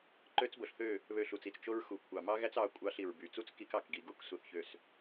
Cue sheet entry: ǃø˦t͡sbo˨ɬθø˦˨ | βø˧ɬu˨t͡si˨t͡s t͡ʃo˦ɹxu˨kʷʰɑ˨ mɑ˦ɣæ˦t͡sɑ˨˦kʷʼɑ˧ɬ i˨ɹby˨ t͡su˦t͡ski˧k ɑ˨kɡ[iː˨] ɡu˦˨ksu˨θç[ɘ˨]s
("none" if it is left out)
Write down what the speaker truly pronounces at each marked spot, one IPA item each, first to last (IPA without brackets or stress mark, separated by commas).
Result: i˨, ø˨